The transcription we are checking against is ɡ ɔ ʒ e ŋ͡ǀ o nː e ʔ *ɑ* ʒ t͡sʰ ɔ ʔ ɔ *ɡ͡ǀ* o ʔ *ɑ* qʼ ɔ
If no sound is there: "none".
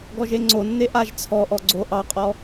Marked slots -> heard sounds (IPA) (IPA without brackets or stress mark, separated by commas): a, ɡ͡ǀ, ɑ